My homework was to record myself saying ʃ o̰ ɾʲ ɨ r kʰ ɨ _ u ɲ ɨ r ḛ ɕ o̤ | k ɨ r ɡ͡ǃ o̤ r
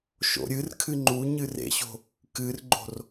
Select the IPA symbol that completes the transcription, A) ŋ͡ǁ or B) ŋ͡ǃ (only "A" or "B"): B